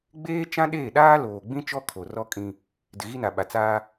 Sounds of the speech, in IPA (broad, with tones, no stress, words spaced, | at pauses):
ɡ͡beː˦ t͡ʃã˦ɗeː˦˨ɗaː˦ loː˨ɡ͡bĩ˦ t͡ʃɔ˦kʰo˨ rɔ˦kʼĩ˦ | dɪ˨ɣi˦na˨ɓa˨ t͡saː˦